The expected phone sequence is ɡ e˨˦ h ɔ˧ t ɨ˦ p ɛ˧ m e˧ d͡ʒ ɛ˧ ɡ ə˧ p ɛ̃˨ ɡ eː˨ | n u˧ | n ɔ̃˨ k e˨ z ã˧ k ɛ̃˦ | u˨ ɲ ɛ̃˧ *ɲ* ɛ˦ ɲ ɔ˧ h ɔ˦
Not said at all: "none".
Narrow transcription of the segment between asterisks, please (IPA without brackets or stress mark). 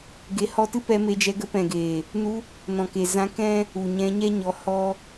ɲ